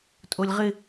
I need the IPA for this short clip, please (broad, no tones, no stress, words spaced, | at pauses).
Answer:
tʼolʲʁɪ